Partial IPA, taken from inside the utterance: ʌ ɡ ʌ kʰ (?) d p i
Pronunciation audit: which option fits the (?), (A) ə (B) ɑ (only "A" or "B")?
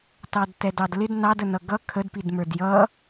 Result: A